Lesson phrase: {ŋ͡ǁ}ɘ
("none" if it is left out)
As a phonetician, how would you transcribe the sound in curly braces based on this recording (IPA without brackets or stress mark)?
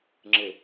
ŋ͡ǁ